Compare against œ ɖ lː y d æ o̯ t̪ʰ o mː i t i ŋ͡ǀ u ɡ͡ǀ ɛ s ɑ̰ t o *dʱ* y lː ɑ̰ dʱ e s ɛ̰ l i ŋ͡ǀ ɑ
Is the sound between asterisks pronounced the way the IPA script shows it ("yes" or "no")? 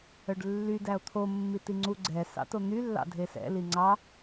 no